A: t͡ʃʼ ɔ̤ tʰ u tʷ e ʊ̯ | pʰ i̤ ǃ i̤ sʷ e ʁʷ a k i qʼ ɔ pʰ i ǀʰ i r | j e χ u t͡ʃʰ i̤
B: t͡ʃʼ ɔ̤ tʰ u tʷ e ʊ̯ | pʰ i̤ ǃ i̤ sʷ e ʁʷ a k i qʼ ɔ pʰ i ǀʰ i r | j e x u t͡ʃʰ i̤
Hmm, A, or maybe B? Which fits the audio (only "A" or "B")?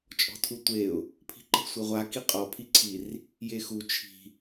B